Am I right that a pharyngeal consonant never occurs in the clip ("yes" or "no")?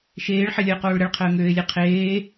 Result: no